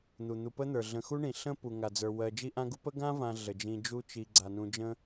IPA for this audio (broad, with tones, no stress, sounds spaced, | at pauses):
n̪ u˩ n̪ u˨ p ə˥ n̪ ə˞˩ ɮ ə̃˨ x u˥ ɳ ĩ˩ ɬ ə̃˥ p u˩ ŋ a˩ d͡z ə˞˩ w ɜ˨ d͡ʒ i˥ ʔ ã˥ ɡ u˥ p ə˥ ɡ ã˥ v ã˨ ɮ ə˩ d͡ʒ ĩ˨ d͡ʒ u˦ t͡ʃ i˨ ɡ͡ǀ a˩ n ũ˨ d͡ʒ ə̃˦